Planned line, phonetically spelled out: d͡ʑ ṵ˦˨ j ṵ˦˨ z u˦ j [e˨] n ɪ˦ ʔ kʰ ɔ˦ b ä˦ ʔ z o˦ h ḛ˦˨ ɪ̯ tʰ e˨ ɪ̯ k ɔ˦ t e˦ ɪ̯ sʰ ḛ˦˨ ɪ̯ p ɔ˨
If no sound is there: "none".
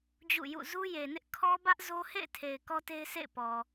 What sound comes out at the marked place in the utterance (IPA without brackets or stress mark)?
e˨